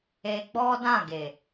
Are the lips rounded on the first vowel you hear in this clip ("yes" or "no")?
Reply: no